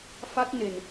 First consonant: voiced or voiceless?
voiceless